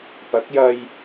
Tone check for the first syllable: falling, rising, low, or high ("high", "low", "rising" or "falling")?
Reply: rising